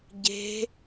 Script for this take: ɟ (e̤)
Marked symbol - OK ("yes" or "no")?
yes